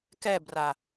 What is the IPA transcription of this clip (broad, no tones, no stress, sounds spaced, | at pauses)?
k ɛ b r a